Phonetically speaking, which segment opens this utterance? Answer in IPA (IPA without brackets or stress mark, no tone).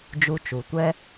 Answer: d͡ʒ